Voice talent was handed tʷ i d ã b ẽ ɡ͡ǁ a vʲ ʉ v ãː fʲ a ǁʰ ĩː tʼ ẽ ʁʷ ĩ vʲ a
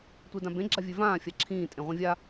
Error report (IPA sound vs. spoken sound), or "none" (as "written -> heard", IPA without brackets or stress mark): none